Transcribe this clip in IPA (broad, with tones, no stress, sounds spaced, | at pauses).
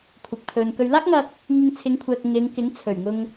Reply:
kʷʰ ɪ˨ k̚ pʰ ɵ˨ n k ɵ˨ ɥ l aː˥ k̚ ŋ ɐ˧ k̚ | ŋ ɪ˧ ŋ t͡sʰ ɪ˨˧ ŋ kʷʰ ɛː˨ k̚ ŋ ɪ˨˧ ŋ k ɪ˨˥ ŋ t͡sʰ ɵ˨˩ ɥ ŋ ʊ˧ ŋ